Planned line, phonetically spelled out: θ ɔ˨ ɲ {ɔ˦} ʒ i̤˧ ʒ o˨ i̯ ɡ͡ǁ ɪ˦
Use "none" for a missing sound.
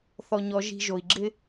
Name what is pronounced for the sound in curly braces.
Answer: ɔ˨˦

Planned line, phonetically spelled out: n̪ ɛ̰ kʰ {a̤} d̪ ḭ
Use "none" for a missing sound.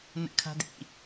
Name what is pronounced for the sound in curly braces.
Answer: a̤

